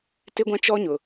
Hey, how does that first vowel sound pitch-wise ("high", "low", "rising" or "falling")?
high